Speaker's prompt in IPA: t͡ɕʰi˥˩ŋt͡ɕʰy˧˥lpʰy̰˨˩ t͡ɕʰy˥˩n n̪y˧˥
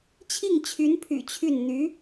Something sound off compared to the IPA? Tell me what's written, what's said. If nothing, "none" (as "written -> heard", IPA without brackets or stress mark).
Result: l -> n